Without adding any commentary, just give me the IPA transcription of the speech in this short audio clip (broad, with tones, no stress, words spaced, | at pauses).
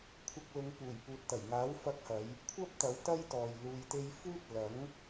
kʷʰɐ˧k̚ lʊ˨˧ŋ puː˨˩jpuː˨t̚ t̪ɐ˨˩jŋaː˨˥wfɐ˧k̚hɐ˨˧j | kʷʰɐ˥p̚t̪ɐ˨˥w t̪ɐ˥jt̪ɔː˨j luː˨jt̪e˧jfuː˥t̚ lɐ˨˥ŋ